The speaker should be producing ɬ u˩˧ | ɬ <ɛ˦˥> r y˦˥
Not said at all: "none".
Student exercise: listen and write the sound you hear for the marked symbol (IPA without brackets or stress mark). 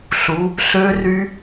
ø˦˥